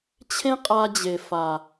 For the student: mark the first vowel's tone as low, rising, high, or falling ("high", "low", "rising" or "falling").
high